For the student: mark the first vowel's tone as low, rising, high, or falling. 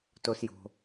high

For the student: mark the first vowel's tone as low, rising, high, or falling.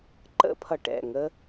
high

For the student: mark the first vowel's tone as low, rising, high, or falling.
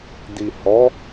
low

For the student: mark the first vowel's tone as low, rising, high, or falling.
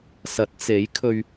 rising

